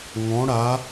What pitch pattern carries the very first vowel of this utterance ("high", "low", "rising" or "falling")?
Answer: rising